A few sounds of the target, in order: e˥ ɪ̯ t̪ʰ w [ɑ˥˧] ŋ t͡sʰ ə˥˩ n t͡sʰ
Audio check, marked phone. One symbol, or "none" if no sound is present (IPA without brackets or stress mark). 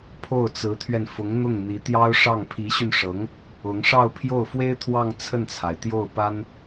ɑ˥˧